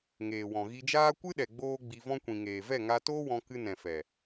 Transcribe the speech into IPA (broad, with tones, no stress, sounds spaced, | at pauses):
ŋ eː˨ w ɔ̃˨ ɣ i˧ d͡ʒ aː˦ kʷ ɨ˦ ɗ ɛ˨ ɡ͡b oː˦ ɡ͡b i˧ v ɔ̃˦ kʷ ĩ˨ ŋ eː˨ v ɛ˦˨ ŋ a˧ t oː˦ w ɔ̃˧ k ɨ˧ n ɛ̃˨ f ɛ˨